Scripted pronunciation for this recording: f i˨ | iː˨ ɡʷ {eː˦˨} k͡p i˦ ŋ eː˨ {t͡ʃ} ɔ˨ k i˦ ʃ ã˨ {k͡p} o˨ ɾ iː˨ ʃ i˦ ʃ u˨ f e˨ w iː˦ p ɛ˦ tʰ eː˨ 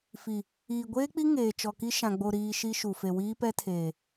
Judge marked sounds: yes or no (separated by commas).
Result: no, yes, no